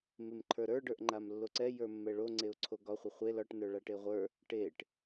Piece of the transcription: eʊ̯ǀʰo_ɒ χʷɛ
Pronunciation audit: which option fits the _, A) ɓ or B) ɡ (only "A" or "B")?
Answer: B